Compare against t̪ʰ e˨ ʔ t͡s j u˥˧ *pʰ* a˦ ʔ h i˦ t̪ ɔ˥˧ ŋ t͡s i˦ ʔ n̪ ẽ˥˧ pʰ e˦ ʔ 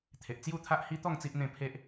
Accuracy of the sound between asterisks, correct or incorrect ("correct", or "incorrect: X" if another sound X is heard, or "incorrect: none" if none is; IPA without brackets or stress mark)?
incorrect: t̪ʰ